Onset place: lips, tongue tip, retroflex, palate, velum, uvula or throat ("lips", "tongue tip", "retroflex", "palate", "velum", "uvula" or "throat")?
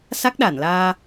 tongue tip